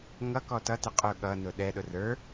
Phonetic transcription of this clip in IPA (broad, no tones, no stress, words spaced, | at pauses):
ŋʌ kɔtʌtɪ qʼʊ ɠʌnʊ ɗɛɗʊ rə˞